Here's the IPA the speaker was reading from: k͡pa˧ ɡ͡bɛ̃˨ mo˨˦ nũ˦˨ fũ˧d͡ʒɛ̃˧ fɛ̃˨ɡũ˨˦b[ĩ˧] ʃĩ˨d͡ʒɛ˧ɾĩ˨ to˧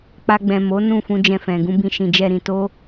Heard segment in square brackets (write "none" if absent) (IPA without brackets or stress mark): ĩ˧